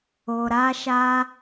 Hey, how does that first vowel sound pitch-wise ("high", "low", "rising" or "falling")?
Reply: low